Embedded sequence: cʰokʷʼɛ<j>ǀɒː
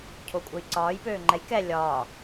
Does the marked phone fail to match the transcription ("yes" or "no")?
no